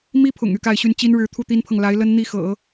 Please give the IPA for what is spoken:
m i˥ pʰ ʊ̰˨˩ ŋ y˥˧ k a˥˧ ɪ̯ ɕ y˥˩ n t͡ɕ i˥ n ɻ ɻ̩˧˥ t̪ʰ u˥˩ t̪ i˥ n pʰ ɤ˨ ŋ l a˧˥ ɪ̯ l ə˥ n n̪ i˥˩ x ɤ̰˨˩˦

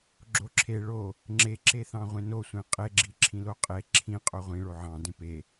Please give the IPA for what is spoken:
ɡ͡ǁ o ǁʰ e ɭ o | ŋ͡ǁ e ǁ e θ ɑ̃ ʁʷ ẽ n o sʷ ẽ qʼ e ɡ͡ǁ i ǁʰ ĩ l o qʼ e ǁʰ ĩ qʼ o ʁʷ ĩ ɭ o ʕ ɑ̃ d ẽ p e

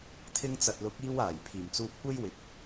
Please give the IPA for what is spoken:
t̪ʰ ɪ˧ ŋ t͡s ɐ˨ t̚ l ʊ˨˥ k̚ iː˧ w aː˨˩ j pʰ iː˨˩ m t͡s uː˧ p̚ kʷ e˥ j w ɪ˨˥ k̚

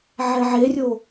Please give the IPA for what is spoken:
ʕ ɛ ʕ e rʲ o

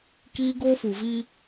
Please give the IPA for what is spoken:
k iː˦ ɡ oː˦ f u˨ v i˦

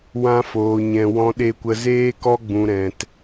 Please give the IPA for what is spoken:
w ã˦ f oː˧ ɲ ɛ̃˧ w ɔ̃˦ ɗ e˦ kʷ ə˦ z eː˦ k ɔ˦ ɡ͡b ũ˧ ɾ ɛ̃˧ t

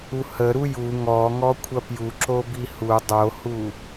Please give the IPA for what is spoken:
u h ə ɾ u j u ŋ ɔ ŋ ɔ kʷʰ ɐ p j u ǁ o b i h u dˤ o h u

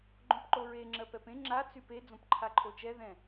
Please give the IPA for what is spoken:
ɡ͡ǃ õ p ǃ o ɹ e ŋ͡ǁ ɜ p ɛ p ẽ ŋ͡ǁ a t͡s y p e d͡z õ p ǃʰ a ǃʰ o t͡ʃ ɛ ð ɛ̃

